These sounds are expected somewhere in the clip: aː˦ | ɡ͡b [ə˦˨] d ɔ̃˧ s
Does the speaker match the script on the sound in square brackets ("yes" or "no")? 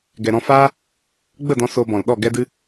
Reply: yes